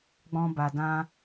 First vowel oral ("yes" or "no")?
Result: no